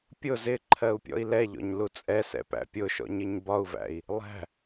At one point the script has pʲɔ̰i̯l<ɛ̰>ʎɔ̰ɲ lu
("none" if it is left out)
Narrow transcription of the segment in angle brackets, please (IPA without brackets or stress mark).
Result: ɛ